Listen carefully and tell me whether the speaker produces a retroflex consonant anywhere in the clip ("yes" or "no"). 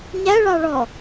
yes